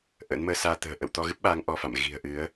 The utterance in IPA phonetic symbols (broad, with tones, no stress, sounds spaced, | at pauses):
ʔ ə̰ː˧˥ n m əː˧ s aː˧ t̪ ə̤ː˨˩ ʔ ə̰˧˨ w t̪ ɔ˧ ɣ ɨ˦˥ p̚ ɓ aː˨˦ ŋ ʔ ɔ˧ f a̰˧˨ m ɣ i̤˨˩ ə̯ ʔ ɨ˨˦ ə̯